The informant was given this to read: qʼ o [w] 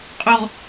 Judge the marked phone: incorrect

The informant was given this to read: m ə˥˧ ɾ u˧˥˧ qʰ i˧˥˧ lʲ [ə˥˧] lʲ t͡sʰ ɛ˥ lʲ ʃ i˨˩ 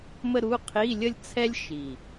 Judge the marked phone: correct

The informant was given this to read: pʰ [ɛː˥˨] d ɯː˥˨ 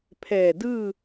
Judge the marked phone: incorrect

